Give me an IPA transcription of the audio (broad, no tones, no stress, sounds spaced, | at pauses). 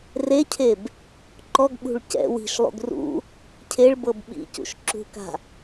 r e cʰ e b | ǃ ɔ ɡ ɓ ṳ ɭ c ɛ̰ w i̤ ʃ lˠ ṵ ɡ r ṵ | cʰ e ɭ b ɤ b ɓ ḭ c ṵ ʃ ǁ ṳ k a̤